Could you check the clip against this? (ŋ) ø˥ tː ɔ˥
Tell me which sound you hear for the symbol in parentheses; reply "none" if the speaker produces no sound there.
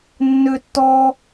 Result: nː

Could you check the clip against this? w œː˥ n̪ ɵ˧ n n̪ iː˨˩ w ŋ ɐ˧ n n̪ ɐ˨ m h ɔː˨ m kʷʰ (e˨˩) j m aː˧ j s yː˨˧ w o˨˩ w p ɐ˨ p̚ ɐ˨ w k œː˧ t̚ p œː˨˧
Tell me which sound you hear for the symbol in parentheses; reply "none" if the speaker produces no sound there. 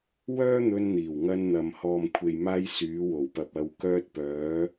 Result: e˨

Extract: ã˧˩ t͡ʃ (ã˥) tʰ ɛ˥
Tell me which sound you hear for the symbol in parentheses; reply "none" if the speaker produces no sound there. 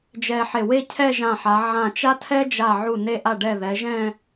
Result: a˥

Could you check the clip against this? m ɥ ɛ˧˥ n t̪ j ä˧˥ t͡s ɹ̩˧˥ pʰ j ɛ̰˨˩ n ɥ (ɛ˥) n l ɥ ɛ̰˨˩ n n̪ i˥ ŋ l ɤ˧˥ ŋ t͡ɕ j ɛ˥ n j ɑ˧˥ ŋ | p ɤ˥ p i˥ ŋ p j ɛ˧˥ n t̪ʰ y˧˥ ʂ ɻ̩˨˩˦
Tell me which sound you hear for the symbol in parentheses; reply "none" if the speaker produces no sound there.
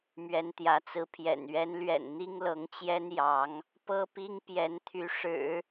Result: ɛ˧˥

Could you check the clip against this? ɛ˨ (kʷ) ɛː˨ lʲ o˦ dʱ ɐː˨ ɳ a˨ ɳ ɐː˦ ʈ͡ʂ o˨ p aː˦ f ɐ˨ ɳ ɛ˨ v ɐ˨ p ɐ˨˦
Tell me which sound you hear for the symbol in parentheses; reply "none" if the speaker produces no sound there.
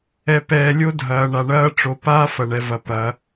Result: p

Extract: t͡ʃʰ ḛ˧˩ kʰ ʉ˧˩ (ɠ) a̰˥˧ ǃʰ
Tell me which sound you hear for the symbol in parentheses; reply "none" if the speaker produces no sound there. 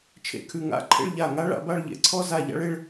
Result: ŋ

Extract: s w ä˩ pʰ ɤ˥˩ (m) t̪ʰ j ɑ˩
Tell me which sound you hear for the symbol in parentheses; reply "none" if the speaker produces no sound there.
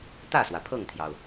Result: ŋ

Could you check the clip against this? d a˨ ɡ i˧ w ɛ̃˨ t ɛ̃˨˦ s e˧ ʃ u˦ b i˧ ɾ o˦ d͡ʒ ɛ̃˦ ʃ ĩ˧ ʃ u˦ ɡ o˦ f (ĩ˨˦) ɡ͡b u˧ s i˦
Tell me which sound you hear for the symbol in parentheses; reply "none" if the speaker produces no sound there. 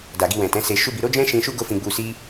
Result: ĩ˧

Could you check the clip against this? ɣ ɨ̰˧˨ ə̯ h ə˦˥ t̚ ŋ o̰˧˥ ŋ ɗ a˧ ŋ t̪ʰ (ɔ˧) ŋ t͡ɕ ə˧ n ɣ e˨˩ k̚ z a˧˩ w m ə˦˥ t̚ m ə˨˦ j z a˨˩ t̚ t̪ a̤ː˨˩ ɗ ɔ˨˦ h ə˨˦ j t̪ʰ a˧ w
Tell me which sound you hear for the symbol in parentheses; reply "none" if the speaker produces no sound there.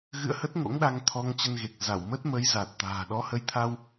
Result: ɔ˧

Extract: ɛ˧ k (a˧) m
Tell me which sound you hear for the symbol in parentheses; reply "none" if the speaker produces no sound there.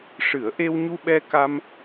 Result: a˧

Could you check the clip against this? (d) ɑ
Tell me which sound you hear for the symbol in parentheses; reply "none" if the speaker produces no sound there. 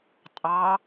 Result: tʼ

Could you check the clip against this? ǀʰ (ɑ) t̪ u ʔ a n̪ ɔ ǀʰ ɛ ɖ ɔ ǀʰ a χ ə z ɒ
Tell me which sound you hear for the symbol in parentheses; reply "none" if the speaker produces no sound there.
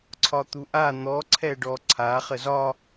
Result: ɒ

